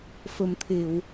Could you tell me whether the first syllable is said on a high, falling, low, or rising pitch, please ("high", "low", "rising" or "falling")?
low